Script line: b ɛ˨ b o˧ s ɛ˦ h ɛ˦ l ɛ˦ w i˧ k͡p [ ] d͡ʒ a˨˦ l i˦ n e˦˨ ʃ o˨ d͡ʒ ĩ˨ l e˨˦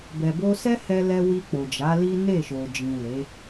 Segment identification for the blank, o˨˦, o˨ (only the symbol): o˨